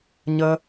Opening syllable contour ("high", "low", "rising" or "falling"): high